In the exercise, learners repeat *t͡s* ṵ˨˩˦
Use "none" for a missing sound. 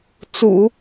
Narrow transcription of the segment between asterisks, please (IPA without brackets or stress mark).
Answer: t͡s